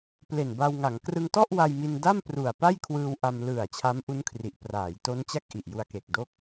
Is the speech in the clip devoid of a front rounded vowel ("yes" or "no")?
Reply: yes